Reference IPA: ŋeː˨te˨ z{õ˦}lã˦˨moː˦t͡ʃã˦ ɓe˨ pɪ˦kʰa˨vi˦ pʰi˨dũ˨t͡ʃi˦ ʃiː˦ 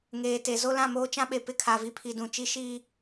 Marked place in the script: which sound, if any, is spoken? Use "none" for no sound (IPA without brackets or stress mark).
o˦